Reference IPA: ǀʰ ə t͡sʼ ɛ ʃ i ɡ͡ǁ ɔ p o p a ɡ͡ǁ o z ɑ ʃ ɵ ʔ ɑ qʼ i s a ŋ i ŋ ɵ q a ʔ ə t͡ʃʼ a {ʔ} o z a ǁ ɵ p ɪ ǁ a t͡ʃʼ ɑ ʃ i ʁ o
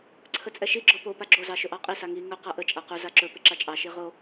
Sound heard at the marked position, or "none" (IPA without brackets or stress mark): q